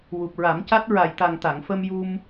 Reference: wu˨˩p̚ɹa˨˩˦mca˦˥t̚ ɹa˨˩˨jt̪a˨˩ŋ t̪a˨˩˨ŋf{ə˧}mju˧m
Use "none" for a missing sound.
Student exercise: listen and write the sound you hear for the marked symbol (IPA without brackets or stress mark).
ə˧